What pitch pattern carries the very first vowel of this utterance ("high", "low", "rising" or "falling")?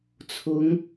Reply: rising